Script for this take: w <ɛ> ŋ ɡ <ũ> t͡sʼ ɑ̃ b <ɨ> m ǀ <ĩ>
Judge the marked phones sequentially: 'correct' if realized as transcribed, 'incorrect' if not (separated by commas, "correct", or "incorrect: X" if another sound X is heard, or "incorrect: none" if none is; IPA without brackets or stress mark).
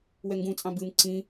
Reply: correct, correct, correct, correct